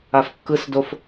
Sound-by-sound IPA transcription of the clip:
a f kː ɯ s d o f

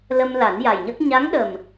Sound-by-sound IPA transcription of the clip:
l ə˧ m l a˨˩˦ n j a˨˩ j ɲ ə˦˥ k̚ ɲ a˧˥ ŋ ɗ ə˨˩ m

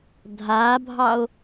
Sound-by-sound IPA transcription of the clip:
dʱ a bʱ ɑ o̯

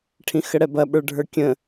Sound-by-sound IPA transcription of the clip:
ʈʰ ĩ x ə ɽ ɛ b ɐ ɓ ə˞ ɖʱ ə˞ kʲ ə̃

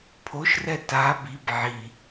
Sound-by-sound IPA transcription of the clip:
pʰ o ʃ r ɛ t a b i b ʕ i

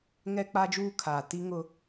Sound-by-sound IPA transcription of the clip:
ŋ ɛ˦ k͡p a˦ d͡ʒ uː˦ kʰ aː˨ t i˦ ŋ ʊ˦

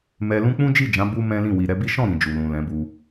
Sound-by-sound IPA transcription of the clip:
m ɛ˧ l ũ˦ k͡p ũ˦ d͡ʒ i˦˨ d͡ʒ ã˨˦ b u˦ m ɛ̃˦ l ĩ˦˨ w i˨ ɾ ɛ˨˦ b i˦ ʃ ɔ̃˦˨ ɾ ĩ˨ d͡ʒ u˨ l ũ˨ l ɛ̃˨˦ b u˧

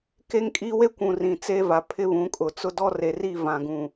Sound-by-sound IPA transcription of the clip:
k e˦ ŋ kʼ i˦ w e˦ kʷ ũ˨ r ĩ˨ t͡s eː˦ v a˨ pʰ ɪ˦ β ũ˨˦ kʼ ʊ˨ t͡s ʊ˦ d ɔ˦ r e˨ r i˦˨ v ã˨ ɡ ũ˨

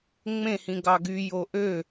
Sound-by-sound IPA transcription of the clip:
ŋ͡m ẽ h ĩ ɡ ɑ ɡ y j o ʔ ø

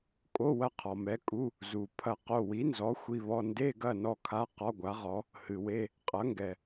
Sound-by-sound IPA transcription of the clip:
kʼ o˧˥˧ w ɐ˦˨ qʰ ɔ˩ m ɛ˩˥ kʼ u˧˥˧ | z u˩ pʰ ɐ˦˨ q o˦˨ w i˩˥ n z ɔ˩˥ xʷ i˧˥˧ β ɔ˧˥˧ n d e˧˥˧ ɡ ɐ˦˨ n ɔ˦˨ kʰ a˧˥˧ q ɔ˧˥˧ ɡʷ a˩˥ ʁ ɔ˩˥ | h ɨ˩ w e˧˥˧ | qʼ ɐ˩˥ ŋ ɡ ɛ˩

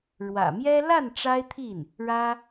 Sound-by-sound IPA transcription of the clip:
ɻ w ä̰˨˩ m j ɛ˥ l a˥˩ n ʈ͡ʂ a˥ ɪ̯ t̪ʰ i˥˩ n | ɻ ä˥

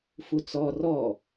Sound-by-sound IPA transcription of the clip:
f u t͡s ɔ r ɔ

